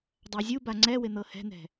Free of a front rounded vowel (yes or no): yes